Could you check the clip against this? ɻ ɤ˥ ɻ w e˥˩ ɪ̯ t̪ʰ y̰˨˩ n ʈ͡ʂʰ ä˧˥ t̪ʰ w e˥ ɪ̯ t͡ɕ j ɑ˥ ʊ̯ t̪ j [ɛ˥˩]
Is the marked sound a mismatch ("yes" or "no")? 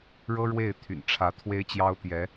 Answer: yes